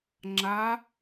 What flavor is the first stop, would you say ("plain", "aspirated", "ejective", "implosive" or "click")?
click